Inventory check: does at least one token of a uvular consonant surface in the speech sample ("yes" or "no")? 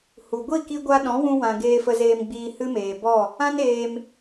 no